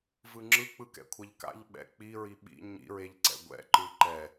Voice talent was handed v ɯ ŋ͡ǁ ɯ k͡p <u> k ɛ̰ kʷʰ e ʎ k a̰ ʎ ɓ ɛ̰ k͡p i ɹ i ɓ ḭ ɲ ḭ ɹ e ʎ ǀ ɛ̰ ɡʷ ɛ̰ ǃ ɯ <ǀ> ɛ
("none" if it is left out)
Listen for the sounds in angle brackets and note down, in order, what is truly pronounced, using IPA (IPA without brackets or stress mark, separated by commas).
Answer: ɯ, ǃ